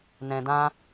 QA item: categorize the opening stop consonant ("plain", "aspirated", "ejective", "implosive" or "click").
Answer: plain